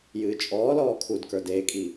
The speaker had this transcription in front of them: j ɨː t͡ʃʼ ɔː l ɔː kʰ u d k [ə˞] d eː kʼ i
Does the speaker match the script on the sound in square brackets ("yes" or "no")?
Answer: yes